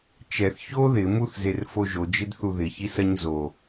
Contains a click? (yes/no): no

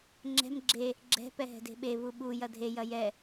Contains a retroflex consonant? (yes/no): no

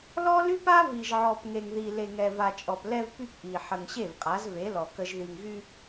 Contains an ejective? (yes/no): yes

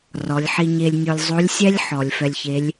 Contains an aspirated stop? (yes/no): no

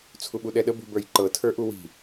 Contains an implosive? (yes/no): yes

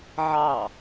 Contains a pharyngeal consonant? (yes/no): yes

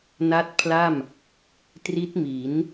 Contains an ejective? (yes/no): no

